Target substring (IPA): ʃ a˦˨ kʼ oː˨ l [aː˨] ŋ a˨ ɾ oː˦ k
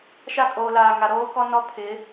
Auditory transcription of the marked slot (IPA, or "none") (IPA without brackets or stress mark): aː˨